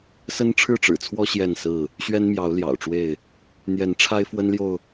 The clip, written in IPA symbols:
sə˦nʈ͡ʂʰɻ̩˥˨ʈ͡ʂɻ̩˨˩t͡sʰwɔ˦ ɕjɛ˥˨nsɹ̩˥˨ | ɕɥɛ˦nmjɑ˨˦ʊ̯ ljɑ̰˨˩ʊ̯ʈ͡ʂwe˥˨ɪ̯ | n̪jɛ˨˦n ʈ͡ʂʰa˦ɪ̯fwə˦nljo˨ʊ̯

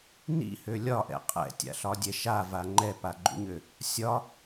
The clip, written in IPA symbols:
nḭhø lʲɒʔɛ̰ qʼɛ̰tʲa̰ɬɒdʲɛ ʃava ŋ͡ǃɛpaɡ͡ǃṵɲø | sʲɒ

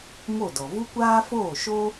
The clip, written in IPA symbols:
mo˦˨dɔ˨ vu˦kʷaː˦foː˦˨ ʃo˦

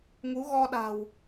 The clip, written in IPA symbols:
ŋu˨˦ɣɔ˧ɗa̤˨˩w

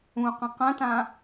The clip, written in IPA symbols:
ũqɐ̃ qɐ̃tã

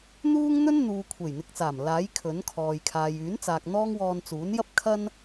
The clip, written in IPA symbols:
n̪uː˥ŋn̪ɵ˥nn̪uː˨ kʷʰe˨˩jn̪ɪ˨k̚t͡saː˨˩m laː˨˥j kʰɵ˨˥nkʰɔː˨j kʰaː˨jyː˨˥nt͡saː˨k̚ n̪ɔː˥ŋwɔː˧n t͡suː˨˥njɐ˥p̚ kʰɐ˥n

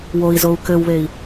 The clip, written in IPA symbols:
woi̯zou̯ kɘwβei̯

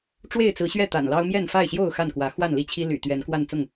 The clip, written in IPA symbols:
ʈ͡ʂwe˥˨ɪ̯t͡sɹ̩˨˦ɕɥɛ˥˨ t̪a̰˨˩nlɑ˦ʊ̯mjɛ˥˨n fa˥˨ɪ̯ɕjo˥˨ʊ̯ xa˥˨nkwä˨˦ xwa˥˨nli˥˨t͡ɕʰi˦ ly̰˨˩ t̪ɥɛ˨˦nkwa˥˨n t͡sʊ˥˨ŋ

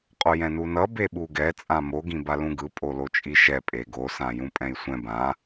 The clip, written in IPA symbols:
qʼojɛ̃nunʌ beɓuɡɛ t͡sʼãmo ɡĩbalũɡɯ pʼolot͡ʃʼiʃɛ pʼeɡo sãjũpʼɛ̃jsʷɛ̃ bã

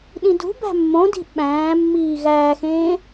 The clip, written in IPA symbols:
ɗĩdṳbæ̤ mːõdi̤ ɓæ̃ːmːiː ɣæːxẽː

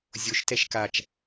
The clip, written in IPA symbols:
zʲoʃtɛʃ kat͡ʃ

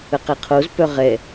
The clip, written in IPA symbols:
əqɛqʰoz pœʁɛ

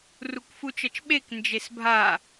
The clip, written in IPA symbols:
rukfut͡ʃʌt͡ʃɓek nd͡ʒesbʱa

